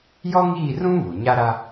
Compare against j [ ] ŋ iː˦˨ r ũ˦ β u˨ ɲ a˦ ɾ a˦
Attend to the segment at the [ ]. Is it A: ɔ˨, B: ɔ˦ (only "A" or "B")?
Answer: B